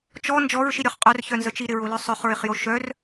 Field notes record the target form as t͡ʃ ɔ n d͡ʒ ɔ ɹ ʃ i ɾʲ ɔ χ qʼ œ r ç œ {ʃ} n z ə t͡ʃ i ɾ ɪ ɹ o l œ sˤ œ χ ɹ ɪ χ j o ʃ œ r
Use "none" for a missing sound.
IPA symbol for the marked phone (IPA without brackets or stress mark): none